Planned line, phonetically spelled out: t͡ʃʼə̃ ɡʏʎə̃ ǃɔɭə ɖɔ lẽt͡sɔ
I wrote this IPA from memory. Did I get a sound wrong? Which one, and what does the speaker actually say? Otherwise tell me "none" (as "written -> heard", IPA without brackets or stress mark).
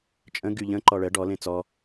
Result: ʏ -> y